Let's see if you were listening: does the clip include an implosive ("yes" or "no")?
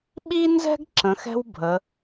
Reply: yes